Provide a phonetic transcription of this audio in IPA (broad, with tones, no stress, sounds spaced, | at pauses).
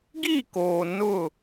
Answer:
ɡ i˦˨ k oː˨ n ʊ˦˨